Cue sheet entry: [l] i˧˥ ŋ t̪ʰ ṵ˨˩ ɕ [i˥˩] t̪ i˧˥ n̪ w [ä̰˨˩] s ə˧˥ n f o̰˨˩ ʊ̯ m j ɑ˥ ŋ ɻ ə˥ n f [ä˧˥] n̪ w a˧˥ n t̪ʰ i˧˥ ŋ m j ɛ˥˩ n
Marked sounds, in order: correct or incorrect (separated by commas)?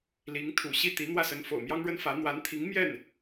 correct, correct, incorrect, correct